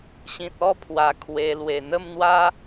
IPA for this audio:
ɕ ĩ˨ t̚ ɔ˥˧ pʰ w a˨˩ kʰ w e˧ l w e˨˩ n̪ ə˥˧ m n̪ w a˦

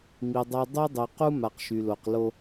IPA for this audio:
m i˨ dˤ a˦ dˤ y˦ dˤ y˨ q u˦ m a˨ q ʃ y˨ l o˨ q l o˦

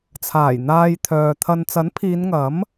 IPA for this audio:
t͡sʰ aː˨˩ j n̪ aː˨ j t̪ʰ œː˨ t̪ʰ ɐ˧ n t͡s ɐ˨˥ n pʰ iː˨˧ n ŋ ɐ˨˥ m

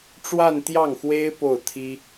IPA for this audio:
ʈ͡ʂ w a˥˧ n t̪ j ɑ˥˩ ŋ x w e˥ ɪ̯ p o˥˩ ʊ̯ t̪ʰ i˥

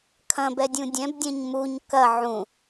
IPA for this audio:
kʰ ɐ̃ b ɛ dʲ ũ dʲ ɛ̃ b dʲ ɛ̃ ɲ m u ɲ k ɐ ʕ ũ

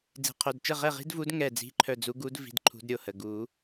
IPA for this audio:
d͡z i̤˨˩˦ qʰ œ˩˧˩ d t͡ʃ ə˥˨ ʁ ɛ˥˨ ʁ i̤˥ d v u˧˥ d ŋ ɛ˧˩ d͡z i̤˧˥ ǃʰ œ˧˩ d͡z u˧˥ ɡ u˧˥ d v i̤˩˧˩ d ǃʰ ṳ˧˥ d ɾʲ o˧˩ h ə˩˧˩ ɡ u˨˩˦

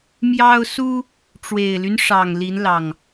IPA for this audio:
m j ɑ˦ ʊ̯ s u˦ | ʈ͡ʂ w e˨˩ ɪ̯ l y˦ n ʂ ɑ˨˩ ŋ l i˨˦ n l ɑ˨˩ ŋ

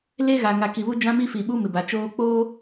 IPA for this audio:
l e˦ ɣ a˨ ŋ a˨ k i˨ β u˦ d͡ʒ ã˦ m i˦ f i˨ ɓ u˦ m ɪ˨ b a˨ t͡ʃ oː˦ k͡p oː˦

